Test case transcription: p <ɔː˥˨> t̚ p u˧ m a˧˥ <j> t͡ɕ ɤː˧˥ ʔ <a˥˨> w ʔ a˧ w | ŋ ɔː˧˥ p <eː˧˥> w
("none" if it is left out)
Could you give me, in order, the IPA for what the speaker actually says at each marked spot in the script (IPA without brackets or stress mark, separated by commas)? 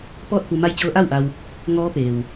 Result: ɔː˥˨, j, a˥˨, eː˩